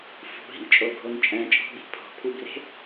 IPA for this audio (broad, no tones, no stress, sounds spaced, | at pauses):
f ṳ ɦ ḭ t͡ʃʼ o ɡʱ o n t͡ʃʼ ɛ̃ t͡ʃʼ ɔ̤ ɓ i̤ pʰ ɔ̤ pʰ u b r e̤